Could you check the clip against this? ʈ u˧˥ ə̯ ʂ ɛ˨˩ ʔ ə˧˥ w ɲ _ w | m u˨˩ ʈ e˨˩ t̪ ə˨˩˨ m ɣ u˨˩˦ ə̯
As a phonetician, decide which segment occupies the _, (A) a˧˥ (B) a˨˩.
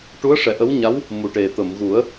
A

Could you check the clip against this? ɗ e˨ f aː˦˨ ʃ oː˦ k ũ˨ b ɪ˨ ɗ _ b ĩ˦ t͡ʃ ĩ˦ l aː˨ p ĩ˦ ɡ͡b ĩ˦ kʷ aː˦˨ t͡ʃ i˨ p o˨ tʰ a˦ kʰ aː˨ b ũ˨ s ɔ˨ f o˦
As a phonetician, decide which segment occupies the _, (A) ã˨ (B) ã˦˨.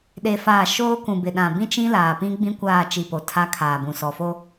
A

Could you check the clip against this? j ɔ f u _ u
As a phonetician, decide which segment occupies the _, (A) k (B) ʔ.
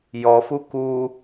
A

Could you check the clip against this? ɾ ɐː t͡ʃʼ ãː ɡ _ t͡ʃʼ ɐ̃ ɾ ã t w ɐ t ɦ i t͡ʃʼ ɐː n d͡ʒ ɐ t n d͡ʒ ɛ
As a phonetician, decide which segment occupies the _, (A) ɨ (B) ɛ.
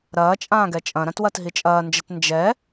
B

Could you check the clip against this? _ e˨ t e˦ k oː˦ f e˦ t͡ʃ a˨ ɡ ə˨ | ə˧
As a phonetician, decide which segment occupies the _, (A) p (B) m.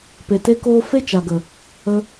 A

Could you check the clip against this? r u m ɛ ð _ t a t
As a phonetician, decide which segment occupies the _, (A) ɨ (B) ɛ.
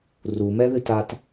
A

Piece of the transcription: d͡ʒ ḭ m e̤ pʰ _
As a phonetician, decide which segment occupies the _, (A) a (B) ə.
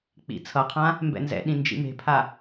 A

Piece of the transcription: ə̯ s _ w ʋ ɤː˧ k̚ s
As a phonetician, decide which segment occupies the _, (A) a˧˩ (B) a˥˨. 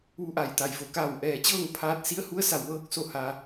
A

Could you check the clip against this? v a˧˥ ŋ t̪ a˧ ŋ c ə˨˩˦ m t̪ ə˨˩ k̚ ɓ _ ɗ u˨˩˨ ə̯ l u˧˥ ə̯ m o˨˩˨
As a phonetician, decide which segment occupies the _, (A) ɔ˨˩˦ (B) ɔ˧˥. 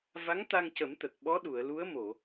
B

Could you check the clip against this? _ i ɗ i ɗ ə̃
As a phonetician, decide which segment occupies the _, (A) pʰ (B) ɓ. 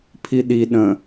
A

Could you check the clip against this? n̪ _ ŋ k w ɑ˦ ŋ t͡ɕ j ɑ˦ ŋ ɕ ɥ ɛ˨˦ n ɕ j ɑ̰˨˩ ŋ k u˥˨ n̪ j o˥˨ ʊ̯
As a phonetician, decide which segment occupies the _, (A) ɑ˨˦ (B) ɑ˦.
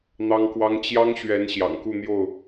B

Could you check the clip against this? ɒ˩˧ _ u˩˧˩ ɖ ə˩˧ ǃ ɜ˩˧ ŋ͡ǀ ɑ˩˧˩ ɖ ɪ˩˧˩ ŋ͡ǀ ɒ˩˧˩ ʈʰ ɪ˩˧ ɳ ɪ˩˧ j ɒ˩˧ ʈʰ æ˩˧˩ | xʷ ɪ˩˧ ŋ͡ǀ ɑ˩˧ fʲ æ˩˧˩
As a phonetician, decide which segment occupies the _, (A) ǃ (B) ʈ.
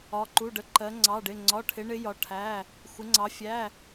A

